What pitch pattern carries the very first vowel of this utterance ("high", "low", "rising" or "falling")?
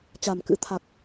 low